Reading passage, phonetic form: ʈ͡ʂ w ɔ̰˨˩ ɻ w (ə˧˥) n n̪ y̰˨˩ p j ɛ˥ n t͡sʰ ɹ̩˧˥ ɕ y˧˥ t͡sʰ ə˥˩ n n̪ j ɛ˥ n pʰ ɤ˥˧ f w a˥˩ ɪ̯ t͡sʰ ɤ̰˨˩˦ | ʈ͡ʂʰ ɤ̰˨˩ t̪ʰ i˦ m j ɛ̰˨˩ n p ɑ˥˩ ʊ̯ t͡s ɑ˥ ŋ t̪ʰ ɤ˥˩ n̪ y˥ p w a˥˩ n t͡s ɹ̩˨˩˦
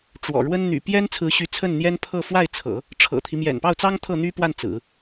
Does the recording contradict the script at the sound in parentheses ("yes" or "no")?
yes